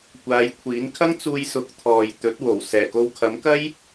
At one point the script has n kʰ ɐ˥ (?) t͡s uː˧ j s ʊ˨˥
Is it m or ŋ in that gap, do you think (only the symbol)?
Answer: ŋ